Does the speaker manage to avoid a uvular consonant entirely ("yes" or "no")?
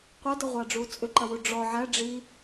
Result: no